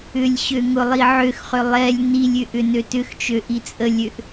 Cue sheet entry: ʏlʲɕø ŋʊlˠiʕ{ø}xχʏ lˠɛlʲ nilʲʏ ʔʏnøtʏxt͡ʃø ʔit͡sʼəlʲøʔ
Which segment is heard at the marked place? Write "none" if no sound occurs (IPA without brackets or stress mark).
ø